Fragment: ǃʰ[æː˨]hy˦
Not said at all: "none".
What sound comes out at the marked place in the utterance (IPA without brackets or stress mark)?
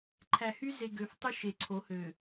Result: æ˨